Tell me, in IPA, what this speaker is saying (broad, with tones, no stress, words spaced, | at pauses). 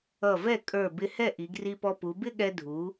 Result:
ʌ˧˩vɛ˥˩ kʼə˞˧˩ bɪ˧ hɛ˥˩ʔi˩˧ɡri˧pɔ˧ pu˩˧bɪ˥˧ɠɛ˧ dʱu˩˧